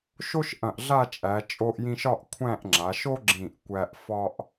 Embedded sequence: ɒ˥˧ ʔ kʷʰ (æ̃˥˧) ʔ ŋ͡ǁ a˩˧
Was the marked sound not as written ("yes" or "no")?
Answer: no